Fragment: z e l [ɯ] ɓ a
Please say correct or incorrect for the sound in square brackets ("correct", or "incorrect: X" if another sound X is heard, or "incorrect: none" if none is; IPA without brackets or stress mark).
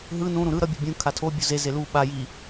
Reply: incorrect: u